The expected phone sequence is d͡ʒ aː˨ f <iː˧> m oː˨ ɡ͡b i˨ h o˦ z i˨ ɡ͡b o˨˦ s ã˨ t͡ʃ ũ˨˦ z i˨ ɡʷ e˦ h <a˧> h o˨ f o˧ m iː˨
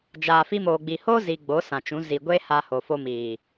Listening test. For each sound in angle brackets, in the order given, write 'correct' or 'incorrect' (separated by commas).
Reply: incorrect, correct